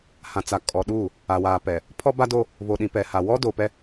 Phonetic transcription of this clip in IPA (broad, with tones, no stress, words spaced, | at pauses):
hã˨t͡sa˨ kʼɔ˨ɗuː˦˨ | a˨waː˨pɛ˨ | pʰɔ˦ba˦do˦ | βo˨ɗĩ˨pɛ˨ha˨ wɔ˦do˨pɛ˦